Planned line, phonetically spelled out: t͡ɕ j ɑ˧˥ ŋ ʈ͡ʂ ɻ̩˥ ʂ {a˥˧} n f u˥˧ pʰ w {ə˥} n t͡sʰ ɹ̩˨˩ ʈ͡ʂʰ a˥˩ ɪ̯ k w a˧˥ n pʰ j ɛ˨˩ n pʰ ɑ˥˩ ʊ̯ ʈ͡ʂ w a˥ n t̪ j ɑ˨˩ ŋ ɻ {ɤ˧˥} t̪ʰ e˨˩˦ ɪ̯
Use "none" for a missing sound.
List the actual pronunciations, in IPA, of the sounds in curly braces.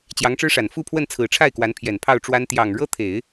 a˨˩, ə˥˩, ɤ˥

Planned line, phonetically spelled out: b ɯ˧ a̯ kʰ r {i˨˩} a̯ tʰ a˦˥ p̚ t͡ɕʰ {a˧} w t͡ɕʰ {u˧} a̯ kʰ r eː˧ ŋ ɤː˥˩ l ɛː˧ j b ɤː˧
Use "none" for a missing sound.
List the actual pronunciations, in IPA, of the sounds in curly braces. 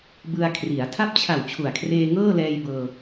i˩˦, a˨˩, u˨˩

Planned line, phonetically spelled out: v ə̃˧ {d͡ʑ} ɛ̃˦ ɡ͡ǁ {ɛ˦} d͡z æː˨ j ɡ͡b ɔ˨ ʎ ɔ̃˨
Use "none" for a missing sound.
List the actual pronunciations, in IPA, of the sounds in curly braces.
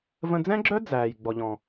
d͡z, œ˦

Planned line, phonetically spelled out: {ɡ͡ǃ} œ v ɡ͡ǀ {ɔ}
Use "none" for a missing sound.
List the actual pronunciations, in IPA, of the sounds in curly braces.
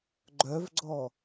ɡ͡ǃ, ɔ

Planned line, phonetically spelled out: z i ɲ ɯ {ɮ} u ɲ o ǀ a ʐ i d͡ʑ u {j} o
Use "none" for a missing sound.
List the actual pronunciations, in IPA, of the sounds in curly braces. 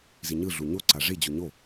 ɮ, ɲ

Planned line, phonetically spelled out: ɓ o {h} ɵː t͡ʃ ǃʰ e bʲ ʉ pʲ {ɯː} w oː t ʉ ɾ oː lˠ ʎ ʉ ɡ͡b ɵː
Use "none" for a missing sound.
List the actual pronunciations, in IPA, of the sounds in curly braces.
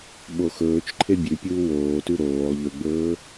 x, uː

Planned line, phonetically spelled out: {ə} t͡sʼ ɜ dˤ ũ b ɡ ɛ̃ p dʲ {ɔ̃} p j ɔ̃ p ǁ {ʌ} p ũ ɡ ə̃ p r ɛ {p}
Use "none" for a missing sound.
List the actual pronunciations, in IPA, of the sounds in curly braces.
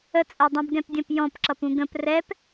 ə, ə̃, ʌ, p

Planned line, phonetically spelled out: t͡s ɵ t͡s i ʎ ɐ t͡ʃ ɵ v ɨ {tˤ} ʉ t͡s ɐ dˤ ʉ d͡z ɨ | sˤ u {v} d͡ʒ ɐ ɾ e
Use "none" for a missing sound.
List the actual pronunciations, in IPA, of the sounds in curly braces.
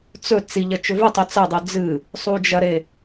tˤ, none

